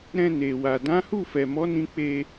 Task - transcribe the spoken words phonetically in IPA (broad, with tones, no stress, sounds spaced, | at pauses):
ɾ ɛ̃˧ n e˨ w a˨ d ã˨˦ h u˦˨ f ɛ˨ m ɔ˨˦ n ĩ˧ k͡p e˧